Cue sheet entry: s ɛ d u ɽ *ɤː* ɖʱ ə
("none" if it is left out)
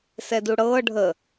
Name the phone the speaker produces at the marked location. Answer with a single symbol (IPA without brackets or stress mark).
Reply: ɤː